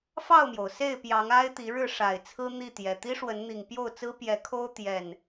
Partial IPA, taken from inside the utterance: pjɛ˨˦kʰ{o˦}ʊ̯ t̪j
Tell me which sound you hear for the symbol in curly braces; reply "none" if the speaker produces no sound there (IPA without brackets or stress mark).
o˦